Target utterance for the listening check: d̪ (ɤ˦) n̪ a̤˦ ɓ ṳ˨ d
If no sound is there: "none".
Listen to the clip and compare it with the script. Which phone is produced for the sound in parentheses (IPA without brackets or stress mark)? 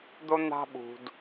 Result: o˦